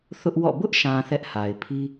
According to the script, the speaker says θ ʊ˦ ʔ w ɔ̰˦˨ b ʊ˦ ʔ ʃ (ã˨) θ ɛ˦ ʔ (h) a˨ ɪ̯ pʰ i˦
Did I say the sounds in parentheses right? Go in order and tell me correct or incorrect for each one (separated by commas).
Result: correct, correct